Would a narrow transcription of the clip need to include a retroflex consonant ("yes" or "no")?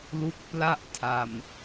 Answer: no